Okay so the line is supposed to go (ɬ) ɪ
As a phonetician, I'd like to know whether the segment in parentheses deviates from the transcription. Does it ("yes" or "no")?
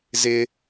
yes